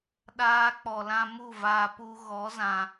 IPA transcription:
ɗ aː˧ k͡p ɔ˨ l ã˧ m u˦˨ v aː˧ p u˧ ɣ ɔ˨˦ z ã˧

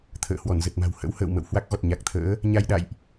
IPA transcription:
t̪ʰ ə̰ː˧˨ h w ɔ˧˩ n z ə˨˩ t̚ m a̤˨˩ w h ə̰˧˥ w h ə̰ː˧˨ w m ə̰˧˨ w h w a˦˥ k̚ ɣ ɔ˨˩ t̚ ɲ a˨˩ k̚ t̪ʰ ə̰ː˧˥ | ɲ a˧ j ɗ a̰˧˨ j ʔ

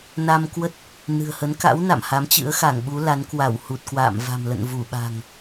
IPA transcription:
n a˧ m k w ə˦˥ t̚ | n ɨ̤˨˩ ə̯ h ə˨˦ n k a̰˧˥ w n a̰˧˨ m h a˨˦ m t͡ɕ ɨ̰˧˥ ə̯ x a˧˩ ŋ ɓ u˨˦ l a˨˦ n k w a˧˩ w h u˨˩ t̚ k w a̰ː˧˨ m v a̤˨˩ m l ə̰˧˨ n v u˧˩ ɓ a̤˨˩ ŋ

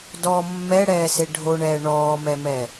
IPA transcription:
d ɔ mː ɛ ɽ ɛː s e ɖʱ o ɳ ɛː ɳ ɔː m ɛ m ɛ

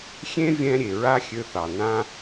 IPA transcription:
xʲ ẽ˦ vʲ ɛ̃˧ ɾʲ e˨ ɹ a˦ xʲ ø˧ θ ɑ˨ n ã˧

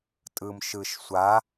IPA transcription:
tʼ ɯ m ʃ ɯ ʃ sʷ a

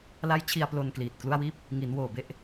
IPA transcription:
l a˦˥ j t͡ɕʰ i˧ a̯ p l o˧ n k l iː˨˩ t̚ k l u˥˩ a̯ w iː˥˩ p̚ | ŋ i˩˦ n w oː˨˩ b e˥˩ ʔ

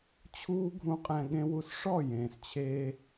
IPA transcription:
t͡ɕʰ uː˦ ɡʱ ũ˧ qʼ ɛ̃˧ ɠ ẽ˧ w u˧ s ʂ ɔ˦˨ j ẽː˨ s t͡ɕʰ eː˧

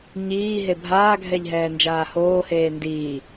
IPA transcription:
ɲ iː ɦ e bʱ aː ɡʱ ɛ ʎ ɦ ɛː n d͡ʒ aː h oː h eː n d iː

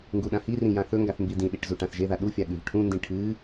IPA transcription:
ŋ ɡ u ɗ ã h i r ĩ j ã θ ɵ ŋ ɡ a θ m b i d ĩ ɗ i ʈ z u ʈ ã θ ʒ e ð a ɗ u fʲ a ɠ ʉ v ʈʰ ũ n d ĩ ʈʰ ɨ

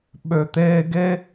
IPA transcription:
ɓ ø˨ t̪ eː˧ ɡ e˦

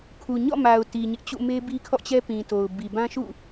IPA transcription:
kʰ u˨ ɲ ɔ̰˦˨ m a˨ ʊ̯ t i˨ ɲ ɪ˦ ʔ t͡ɕ ṵ˦˨ m e˦ b i˦ kʰ ɔ̰˦˨ t͡ɕ ɛ˦ p ĩ˨ t o˨ ʊ̯ b i˨ b ã˦ ʃ ṵ˦˨

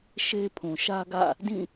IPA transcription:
ʃ e˦ pʰ ũ˨ ʃ ä˦ ɡ ä̰˦˨ | d ĩ˦˨

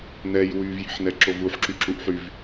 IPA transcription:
n ɛ j w y v j i̤ ħ n ɛ ǁ o v u ħ ǁ y ǁ u ʔ ħ y v

